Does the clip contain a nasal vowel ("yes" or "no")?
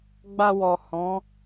yes